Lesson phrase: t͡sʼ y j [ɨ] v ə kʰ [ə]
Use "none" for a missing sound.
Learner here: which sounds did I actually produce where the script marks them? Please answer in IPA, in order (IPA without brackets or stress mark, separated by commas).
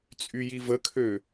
i, ø